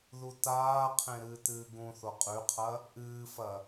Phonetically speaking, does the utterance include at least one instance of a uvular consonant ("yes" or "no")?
yes